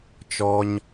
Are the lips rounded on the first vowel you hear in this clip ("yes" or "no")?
yes